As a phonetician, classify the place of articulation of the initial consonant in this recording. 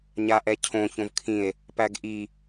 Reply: palatal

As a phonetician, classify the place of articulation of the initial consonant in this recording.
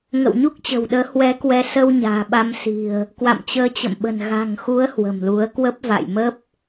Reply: velar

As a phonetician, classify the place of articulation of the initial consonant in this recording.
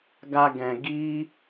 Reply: velar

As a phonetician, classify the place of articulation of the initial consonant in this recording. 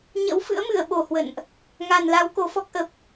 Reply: palatal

